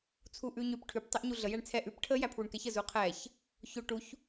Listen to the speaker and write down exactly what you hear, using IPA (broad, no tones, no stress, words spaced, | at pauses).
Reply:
t͡sʰuʔʉ ɲʉp ʈʰʉp tˤɛʔɲuɮə jæɳt͡sʰɛ ʔʉp ʈʰə jæpʰwuɳkɛçə zuqʰɛç | ço ʈuç